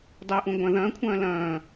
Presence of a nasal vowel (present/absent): present